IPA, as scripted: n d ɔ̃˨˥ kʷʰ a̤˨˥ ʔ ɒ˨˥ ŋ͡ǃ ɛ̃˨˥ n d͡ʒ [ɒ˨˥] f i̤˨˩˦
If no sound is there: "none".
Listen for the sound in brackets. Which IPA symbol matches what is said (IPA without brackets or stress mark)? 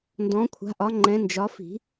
ɒ˨˥